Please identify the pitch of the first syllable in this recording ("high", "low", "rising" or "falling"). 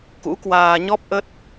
rising